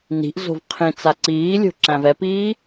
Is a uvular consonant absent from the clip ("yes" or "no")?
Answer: no